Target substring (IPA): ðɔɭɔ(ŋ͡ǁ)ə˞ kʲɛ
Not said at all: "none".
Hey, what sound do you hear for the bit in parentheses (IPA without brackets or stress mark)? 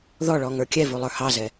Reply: ŋ